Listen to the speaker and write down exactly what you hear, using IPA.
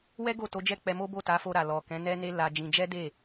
w ɛ˦ ɡ o˦˨ t o˨˦ d͡ʒ ɛ˦˨ k͡p ɛ˧ m o˦ b o˦˨ t a˨˦ f o˧ ɾ a˨ l ɔ˨ k ɛ̃˨˦ n ɛ˦ n e˦ l a˧ d͡ʒ ĩ˧ d͡ʒ ɛ˦ d e˦˨

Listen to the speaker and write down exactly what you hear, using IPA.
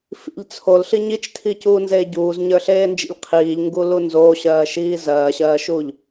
f ḭ ʎ t͡sʰ o l ɬ i ɲ i t͡ʃ tʰ i c uː n z eː ɟ uː z ɲ ə˞ ɬ eː n d͡ʒ ḛ ʎ qʰ iː ʎ ŋ ɡ u l u n z oː ɕ ɜː ʃ iː z ɜː ɕ ɜː ʃ uː ʎ

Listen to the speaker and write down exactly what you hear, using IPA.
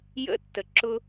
j ə̰˥ tː ə˨ ǁ ʊ˦

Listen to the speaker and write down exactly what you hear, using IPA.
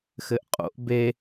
x ɘ ʔ qʼ o̰ ʔ b e

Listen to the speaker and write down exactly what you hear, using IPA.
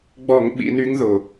ɡ͡b ɔ˧˩˧ ŋ ɓ ḭ˩˧ n y˧˥ ŋ ð ʊ˩

